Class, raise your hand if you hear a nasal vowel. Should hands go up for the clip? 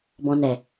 yes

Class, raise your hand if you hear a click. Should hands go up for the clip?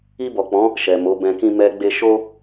no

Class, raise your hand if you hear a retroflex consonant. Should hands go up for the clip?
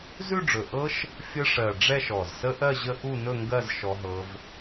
yes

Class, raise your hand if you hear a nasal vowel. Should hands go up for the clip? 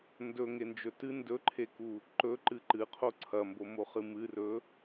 no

